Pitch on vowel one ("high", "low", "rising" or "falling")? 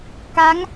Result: rising